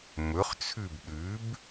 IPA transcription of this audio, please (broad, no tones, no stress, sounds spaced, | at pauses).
m ɵ χ t͡sʰ ʉ b ɗ ʉ b